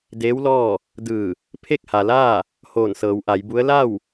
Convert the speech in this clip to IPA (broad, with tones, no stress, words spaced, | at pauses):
deː˧˥wlɔː˥˨ | dɯː˧˩ | pʰe˥˨k̚ha˩laː˥˨ | hoː˧˩nsɤː˩˧wʔa˩˧jbu˧˥ə̯ la˥˨w